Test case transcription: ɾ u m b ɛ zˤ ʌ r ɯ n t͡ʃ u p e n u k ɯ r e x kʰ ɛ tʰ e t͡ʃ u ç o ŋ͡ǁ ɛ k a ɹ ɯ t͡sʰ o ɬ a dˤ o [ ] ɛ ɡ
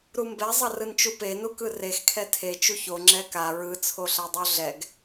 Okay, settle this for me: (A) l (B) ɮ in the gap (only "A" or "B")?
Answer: B